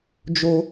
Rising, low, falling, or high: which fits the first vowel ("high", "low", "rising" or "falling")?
high